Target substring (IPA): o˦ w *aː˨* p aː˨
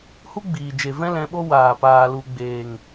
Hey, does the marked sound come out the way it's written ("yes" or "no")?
yes